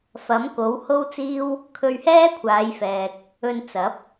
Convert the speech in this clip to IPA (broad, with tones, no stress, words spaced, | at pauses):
fɐ˨˥mko˨˥who˥wt͡siː˥w | kʰɵ˧ɥhɛː˥kʷʰaː˨˧jfɛː˨k̚ | ɵ˧nt͡sɐ˨˥p̚